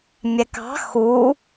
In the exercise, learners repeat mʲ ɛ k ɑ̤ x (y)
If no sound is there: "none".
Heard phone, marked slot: u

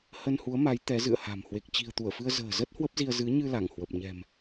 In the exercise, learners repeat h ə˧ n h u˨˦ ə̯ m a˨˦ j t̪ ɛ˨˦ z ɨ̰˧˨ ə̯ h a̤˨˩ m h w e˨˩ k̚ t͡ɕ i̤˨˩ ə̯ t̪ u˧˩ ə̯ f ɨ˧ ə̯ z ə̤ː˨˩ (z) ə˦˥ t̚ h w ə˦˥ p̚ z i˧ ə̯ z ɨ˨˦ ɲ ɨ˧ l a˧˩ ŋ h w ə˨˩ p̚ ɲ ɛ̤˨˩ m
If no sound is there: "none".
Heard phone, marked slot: z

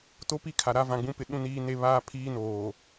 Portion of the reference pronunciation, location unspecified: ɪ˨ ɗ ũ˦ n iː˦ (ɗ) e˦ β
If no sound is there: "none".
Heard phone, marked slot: n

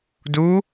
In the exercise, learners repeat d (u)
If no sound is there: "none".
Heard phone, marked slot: u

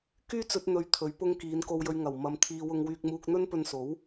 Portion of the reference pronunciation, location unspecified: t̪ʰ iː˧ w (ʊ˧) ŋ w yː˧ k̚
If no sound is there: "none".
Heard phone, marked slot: ʊ˧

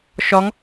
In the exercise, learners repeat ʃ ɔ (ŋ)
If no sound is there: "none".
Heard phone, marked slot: ŋ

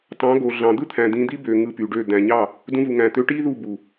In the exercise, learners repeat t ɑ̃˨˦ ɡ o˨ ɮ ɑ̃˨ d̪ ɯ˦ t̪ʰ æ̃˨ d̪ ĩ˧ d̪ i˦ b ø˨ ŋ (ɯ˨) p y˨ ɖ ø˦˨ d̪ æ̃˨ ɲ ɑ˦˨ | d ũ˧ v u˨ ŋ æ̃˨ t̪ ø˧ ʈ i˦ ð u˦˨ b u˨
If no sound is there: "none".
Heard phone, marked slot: ɯ˧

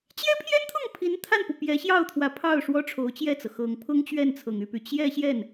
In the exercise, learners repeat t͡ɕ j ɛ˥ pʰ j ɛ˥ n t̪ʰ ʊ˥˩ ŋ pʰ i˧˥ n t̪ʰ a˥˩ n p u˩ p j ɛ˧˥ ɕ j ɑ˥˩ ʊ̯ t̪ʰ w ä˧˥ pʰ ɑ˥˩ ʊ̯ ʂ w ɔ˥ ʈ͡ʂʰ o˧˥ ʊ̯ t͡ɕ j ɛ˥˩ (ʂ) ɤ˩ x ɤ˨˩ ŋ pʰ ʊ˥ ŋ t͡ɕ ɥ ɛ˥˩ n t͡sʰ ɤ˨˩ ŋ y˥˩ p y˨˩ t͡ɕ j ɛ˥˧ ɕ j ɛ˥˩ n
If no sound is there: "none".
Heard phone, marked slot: t͡s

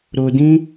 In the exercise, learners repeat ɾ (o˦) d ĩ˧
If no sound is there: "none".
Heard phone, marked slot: o˨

